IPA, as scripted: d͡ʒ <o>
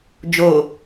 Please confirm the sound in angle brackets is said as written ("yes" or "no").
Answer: yes